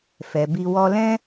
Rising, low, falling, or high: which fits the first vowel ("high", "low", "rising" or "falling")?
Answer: low